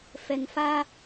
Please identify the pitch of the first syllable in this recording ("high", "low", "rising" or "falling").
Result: low